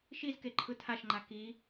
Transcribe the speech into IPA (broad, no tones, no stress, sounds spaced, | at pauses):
ʃ i z k e ǃʰ ɯ tʰ a ʃ ŋ͡ǃ a k i